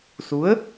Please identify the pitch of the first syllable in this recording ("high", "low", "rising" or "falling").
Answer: rising